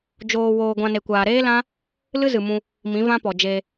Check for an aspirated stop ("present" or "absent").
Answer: absent